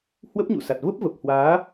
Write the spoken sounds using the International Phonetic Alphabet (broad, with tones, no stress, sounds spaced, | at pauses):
h w ə˦˥ p̚ ɲ ṵ˧˨ s a˨˩ t̚ v ə˦˥ p̚ v ə˨˩ p̚ h w aː˨˦